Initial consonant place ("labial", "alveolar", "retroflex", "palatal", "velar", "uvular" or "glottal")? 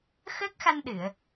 velar